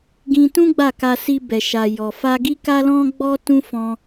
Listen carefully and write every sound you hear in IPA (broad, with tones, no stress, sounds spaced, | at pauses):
ɡ ĩ˧ t ũ˦ ɡ͡b a˦˨ k a˧ s i˧ b ɛ˨ ʃ a˨ j ɔ˨ f a˧ ɡ i˦ k a˦ l ɔ̃˦ ɡ͡b ɔ˦ t ũ˦ f ɔ̃˦